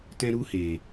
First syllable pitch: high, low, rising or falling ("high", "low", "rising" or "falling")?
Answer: high